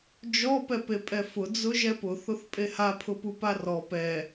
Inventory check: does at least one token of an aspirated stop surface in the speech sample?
yes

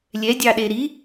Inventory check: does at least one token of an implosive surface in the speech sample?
yes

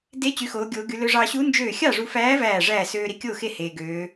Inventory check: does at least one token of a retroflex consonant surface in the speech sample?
yes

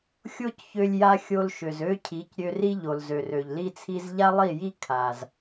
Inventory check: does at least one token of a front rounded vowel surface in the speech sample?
yes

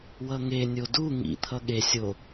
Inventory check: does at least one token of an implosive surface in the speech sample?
yes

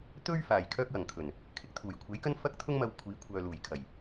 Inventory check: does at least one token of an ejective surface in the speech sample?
no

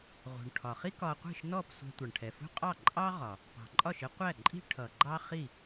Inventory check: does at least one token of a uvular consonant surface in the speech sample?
yes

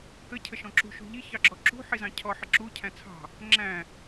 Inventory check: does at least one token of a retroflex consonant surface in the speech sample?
no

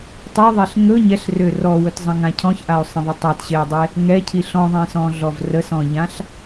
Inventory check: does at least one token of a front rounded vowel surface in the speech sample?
yes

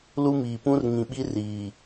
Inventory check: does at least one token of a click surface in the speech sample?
no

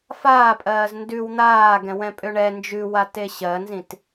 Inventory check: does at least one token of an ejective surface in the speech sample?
yes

